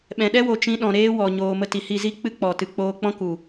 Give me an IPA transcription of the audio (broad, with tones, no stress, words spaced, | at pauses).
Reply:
ɓɛ̃˨ ɗɛ˦wo˨ t͡ʃĩ˧ ɗɔ̃˨ɾeː˦wɔ˨ ɲoː˨mə˧ ti˨hi˦˨zi˦ k͡pɨ˦k͡pɔ˨tɨ˨ k͡poː˧k͡pɔ̃˦ ku˨